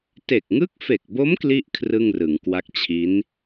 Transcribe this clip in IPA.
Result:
t e˨˩ k̚ ŋ ɯ˦˥ k̚ f e˨˩ k̚ b o˦˥ m k l i˥˩ ʔ kʰ r ɯ˥˩ ŋ r ɯ˩˦ ŋ k w a˦˥ k̚ t͡ɕʰ i˦˥ n

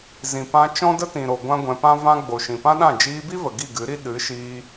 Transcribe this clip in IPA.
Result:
z ĩ˨ p ã˧ t͡ʃ ɔ̃˦ d ə˦ t ĩ˨ ɾ o˨ ɡʷ ã˦ ɡʷ ɛ̃˧ p ã˦ v ã˦ ɡ͡b o˨ ʃ ĩ˨ p ã˦ ɗ ã˦˨ d͡ʒ iː˧ b i˦ v ə˨ ɡ i˦˨ ɡ ɨ˨˦ ɾ i˦ ɗ ɨ˨˦ ʃ iː˧

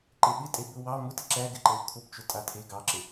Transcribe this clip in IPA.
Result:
ǃ e ɓ ɪ tʼ e b ʊ w ɑ m ʊ t ɪ ǁ æ ɡ ɪ ǃ ɛ w kʰ ʊ p t͡ʃ ʊ tʼ a tʰ e ɡ ɑ ǁ ɪ

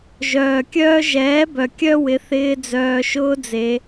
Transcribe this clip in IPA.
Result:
ʒ œː˨ kʲ œː˦ ʒ ɛː˨˦ b œ˨ kʲ œ˦ w ɪ˨˦ θ ɪː˧ d͡z œː˨ ʃ ʊː˧ d͡z e˧

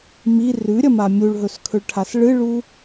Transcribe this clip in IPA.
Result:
m i r ʉ ɾʲ ɐ m a mʲ u ɭ ɦ ɵ s kʰ ɵ ɭ ʈʰ a s ɭ ɨ ɭ u

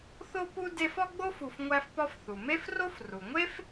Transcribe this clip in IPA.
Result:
θ o˥ p u˥ d e˦ f ɒ˥ ɡ͡b o˥ f u˨ f ŋʷ æ˦ f p ɒ˦ f θ u˩ m e˥ f r o˥ f r u˩ ŋʷ e˥ f

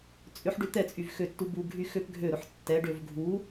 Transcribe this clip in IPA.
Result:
t͡sʼ ʏ ħ ɖ ʏ t̪ ɛ t͡sʼ y v x ø tː u b u ɡʱ y x ø p ɡʱ ø ɾ ʊ ħ tː ɛ ɖ ø v ɡʱ u

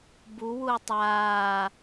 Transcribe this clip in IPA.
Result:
b u w u ə̯ tˤ aː

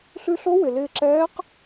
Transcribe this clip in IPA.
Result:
ɬ ʉ˧ ɬ o˧˥ w ɪ˩ l ɪː˧ ǁ ɛː˧˥ q

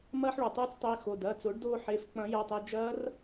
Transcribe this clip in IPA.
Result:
m ɐː˧ ħ ɭ o˩ tˤ yː˧ t͡s tˤ i˩˧˩ x o˩˧˩ d ɐː˩˧˩ t͡s o˨˩˦ ɖ d oː˧ ħ e˩˧˩ f k͡p ɐ̃˨˩˦ j ɐ˩˧˩ tˤ e˧ d͡ʒ ɐː˦˥ r

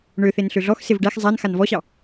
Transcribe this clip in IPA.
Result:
ɳ ø θ e n ɬ ø ɮ ɔ x s e v ɖ æ x zˤ æ n x a n v ɔ ɕ ɑ

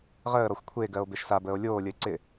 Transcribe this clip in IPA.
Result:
ʁ əː ɾ ɔ xʷ kʷʰ e ɡ ɜ o̯ b e ʃ s a b əː o̯ lʲ oː lʲ ə e̯ ǀ ɪ

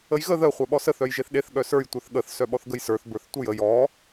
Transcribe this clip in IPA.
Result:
ə j ɣ ə ð ə χʷ œ ɓ ɔ s ə θ œ j ʒ e θ ɗ e θ ɠ œ s ə˞ j tʷ ə˞ θ ɠ ə θ s œ ɓ ɔ θ ɡ ə j s ə˞ θ b ə˞ θ tʷ ə j ə j ɔ

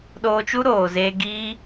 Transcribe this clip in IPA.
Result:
ɗ oː˧ t͡ʃ u˦ ɾ oː˨ z eː˧ ɡ iː˦

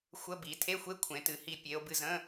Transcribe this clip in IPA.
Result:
xʷ ə˧˥˧ b i˩˧ tʰ e˧˥˧ xʷ e˧˥˧ kʷʰ ẽ˩˧ t ɨ˩˧ h i˧˩ pʲ e˩˧ o̯ b ɨ˧˩ z ə̃˧˥˧

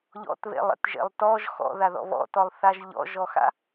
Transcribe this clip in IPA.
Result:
ʎ ɔ̰ t β ḛ lˠ ḛ t ʒ ḛ lˠ t ɔ ʒ x ɔ̰ ð a ð ɔ̰ β ɔ̰ t ɔ lˠ θ a ʒ ʎ ɔ̰ ʒ ɔ x a̰

